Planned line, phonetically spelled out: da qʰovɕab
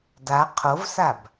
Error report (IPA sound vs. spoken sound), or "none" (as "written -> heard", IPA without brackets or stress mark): ɕ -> s